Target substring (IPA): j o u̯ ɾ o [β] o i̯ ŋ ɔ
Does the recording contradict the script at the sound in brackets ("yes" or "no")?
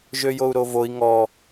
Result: yes